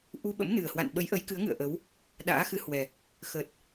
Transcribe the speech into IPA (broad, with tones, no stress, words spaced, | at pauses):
ʔu˧ɓə̰˧˥mnɨ˨˩ə̯ hwa̰˧˨nɓə˨˦jʔə˨˦j kɨ˨˦ə̯ŋɨ̰˧˨ə̯ʔə˨˦w | ɗa̰ː˧˥xɨ˨˦hwɛ˨˩ | xə˨˩t̚